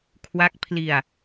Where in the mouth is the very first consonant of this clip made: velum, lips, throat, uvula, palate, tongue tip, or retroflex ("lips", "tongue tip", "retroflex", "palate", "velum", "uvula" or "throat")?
velum